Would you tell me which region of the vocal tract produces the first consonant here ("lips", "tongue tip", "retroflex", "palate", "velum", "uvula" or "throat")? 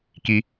velum